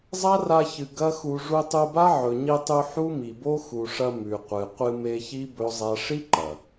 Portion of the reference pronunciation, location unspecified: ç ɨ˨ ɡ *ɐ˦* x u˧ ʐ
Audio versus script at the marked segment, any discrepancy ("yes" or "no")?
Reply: no